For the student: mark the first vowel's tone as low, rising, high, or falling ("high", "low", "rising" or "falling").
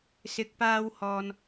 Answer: rising